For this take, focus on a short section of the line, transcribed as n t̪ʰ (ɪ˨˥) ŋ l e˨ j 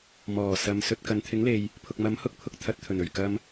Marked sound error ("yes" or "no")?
no